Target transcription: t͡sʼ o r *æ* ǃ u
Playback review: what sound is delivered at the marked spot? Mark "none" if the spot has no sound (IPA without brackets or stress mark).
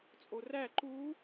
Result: æ